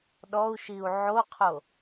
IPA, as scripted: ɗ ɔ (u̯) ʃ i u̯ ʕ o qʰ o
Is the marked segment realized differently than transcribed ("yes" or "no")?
no